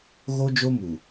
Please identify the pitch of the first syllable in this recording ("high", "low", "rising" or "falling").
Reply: high